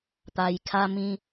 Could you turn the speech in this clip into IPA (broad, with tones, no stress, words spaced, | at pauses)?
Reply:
t̪a˧jkʰa˦mĩ˦